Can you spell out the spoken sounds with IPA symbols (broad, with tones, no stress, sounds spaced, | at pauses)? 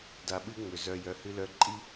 d a˨ ɓ ɨ˦ ŋ͡m ʏ˩ z œ˨ j œ˨ h ɨ˦ l œ˦ ǃʼ i˥